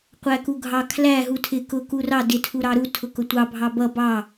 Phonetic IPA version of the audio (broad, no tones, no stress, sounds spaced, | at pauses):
qʷ æ k u ɡʱ ɑ kʰ l æ ɦ u tʰ ɪ k ʊ k u r ɑ d ɪ tʰ u ɾ ɑ ɾ u tʰ ʊ k ʊ tʷ ɑ bʱ ɑ b ʌ b ɑ